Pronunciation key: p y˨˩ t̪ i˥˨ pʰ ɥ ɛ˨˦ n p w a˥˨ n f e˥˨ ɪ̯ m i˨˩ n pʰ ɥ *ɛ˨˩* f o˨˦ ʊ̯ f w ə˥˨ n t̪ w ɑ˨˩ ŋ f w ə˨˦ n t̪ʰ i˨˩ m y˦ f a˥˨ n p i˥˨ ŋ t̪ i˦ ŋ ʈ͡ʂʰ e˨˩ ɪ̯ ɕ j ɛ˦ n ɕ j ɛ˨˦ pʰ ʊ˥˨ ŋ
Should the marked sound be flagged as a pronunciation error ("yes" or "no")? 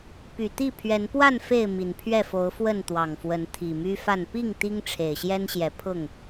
yes